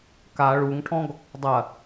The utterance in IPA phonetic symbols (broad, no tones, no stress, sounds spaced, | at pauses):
k a ɭ u ŋ ʈʰ ɔ̃ ɡ | dˤ ɐ